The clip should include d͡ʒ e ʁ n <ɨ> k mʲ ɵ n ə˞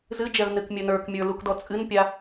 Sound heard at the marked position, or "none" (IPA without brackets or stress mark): ɨ